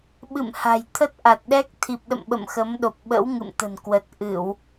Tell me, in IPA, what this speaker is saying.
ɓ ɨ̰˧˨ m h a̤˨˩ j t̪ʰ ə˦˥ t̚ ʔ a˨˩ t̚ ɗ ɛ˦˥ k̚ t̪ʰ i˨˩ p̚ ɗ ə̰˧˨ m ɓ ə̰˧˨ m x ə˨˦ m ɗ o˨˩ p̚ ɓ ə̰˧˥ w ŋ ɨ̰˧˨ m t̪ ə̤˨˩ n k w ə˨˩ t̚ ʔ ɨ˧˩˨ w

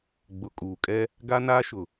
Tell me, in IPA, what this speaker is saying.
ɡ͡b ʊ˨ kʼ uː˨ kʼ ɛ˦ | ɡ a˦ n aː˦ ʃ ʊ˨

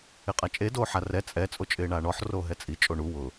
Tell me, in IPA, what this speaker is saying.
ɪ qʼ a t͡ʃʼ e d oː ħ a r ɛ t͡sʼ ɛ t͡sʼ o t͡ʃʼ ɪː ɳ aː ɳ ɔ ħ r oː ɦ ɛ t͡sʼ i t͡ʃʼ o ɳ u w ʊ

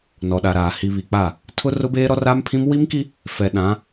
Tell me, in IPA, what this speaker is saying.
n ɔ˨ ɗ a˨ ɾ aː˨ h i˨ β i˨ k͡p a˦˨ | tʰ ʊ˦ r ʊ˦ b eː˦ ɾ ɔ˦ r a˦ m pʰ ĩ˦ m w i˦ m k i˦ | f ɛ˨ ɗ ã˨˦

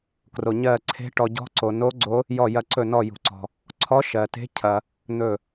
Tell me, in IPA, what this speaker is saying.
k r o˩ ɲ ɜ˧˩ ǀʰ e̤˧˥ ʈ ɔ˩ ɟ ɔ̤˧˥ ǀ o˩ n o˧˥ ɡ͡ǀ o˧˥ | j ɔ˧˩ j ɐ˧˩ ǀ ɵ˧˩ n ɔ˧˩ j ṳ˩ ǀ ɔ̤˩ | ǀʰ ɔ˧˥ ʃ ɜ˩ t e̤˧˥ cʰ ɐ˩ | n̪ ɵ˧˩

